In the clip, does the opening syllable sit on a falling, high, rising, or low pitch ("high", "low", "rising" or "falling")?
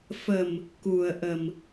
low